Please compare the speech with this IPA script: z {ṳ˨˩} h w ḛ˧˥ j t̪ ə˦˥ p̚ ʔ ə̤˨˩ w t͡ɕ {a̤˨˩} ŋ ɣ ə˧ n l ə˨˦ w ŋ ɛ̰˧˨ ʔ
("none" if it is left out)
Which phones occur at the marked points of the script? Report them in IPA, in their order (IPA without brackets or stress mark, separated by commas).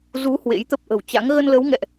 u˨˦, a̰˧˥